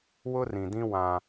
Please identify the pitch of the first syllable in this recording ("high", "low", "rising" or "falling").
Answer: high